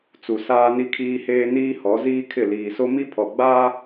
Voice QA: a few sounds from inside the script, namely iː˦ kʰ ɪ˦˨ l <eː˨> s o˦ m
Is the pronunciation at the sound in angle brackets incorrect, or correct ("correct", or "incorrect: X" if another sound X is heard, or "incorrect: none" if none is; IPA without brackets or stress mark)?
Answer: incorrect: iː˨